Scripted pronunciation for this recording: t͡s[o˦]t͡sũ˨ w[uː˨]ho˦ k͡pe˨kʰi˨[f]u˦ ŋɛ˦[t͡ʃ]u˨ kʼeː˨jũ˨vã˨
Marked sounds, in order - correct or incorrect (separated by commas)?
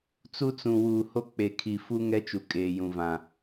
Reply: incorrect, correct, correct, correct